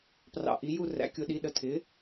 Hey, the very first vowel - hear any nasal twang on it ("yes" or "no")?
no